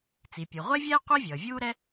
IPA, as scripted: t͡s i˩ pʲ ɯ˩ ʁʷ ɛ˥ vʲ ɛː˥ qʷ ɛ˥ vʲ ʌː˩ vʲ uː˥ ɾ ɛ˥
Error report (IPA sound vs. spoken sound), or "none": none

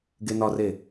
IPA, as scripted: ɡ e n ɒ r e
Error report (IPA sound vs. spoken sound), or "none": none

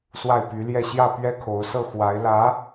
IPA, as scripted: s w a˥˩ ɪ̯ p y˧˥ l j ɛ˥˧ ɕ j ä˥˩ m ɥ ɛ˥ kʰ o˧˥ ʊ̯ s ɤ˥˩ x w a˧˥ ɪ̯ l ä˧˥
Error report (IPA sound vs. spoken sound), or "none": m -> p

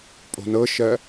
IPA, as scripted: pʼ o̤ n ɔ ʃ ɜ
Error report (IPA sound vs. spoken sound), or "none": ɔ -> ɤ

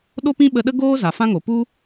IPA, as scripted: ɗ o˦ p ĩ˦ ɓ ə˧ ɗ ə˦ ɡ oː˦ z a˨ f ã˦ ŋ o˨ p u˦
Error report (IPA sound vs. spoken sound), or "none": none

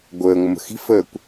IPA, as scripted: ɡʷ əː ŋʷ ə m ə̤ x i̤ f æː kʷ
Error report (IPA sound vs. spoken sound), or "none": æː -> əː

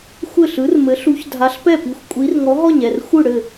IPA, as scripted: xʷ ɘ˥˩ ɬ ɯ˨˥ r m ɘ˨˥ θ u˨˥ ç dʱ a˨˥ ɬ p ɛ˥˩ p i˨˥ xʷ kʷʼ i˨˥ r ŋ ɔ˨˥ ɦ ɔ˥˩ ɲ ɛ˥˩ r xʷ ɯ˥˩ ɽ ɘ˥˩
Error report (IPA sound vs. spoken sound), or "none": θ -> ɬ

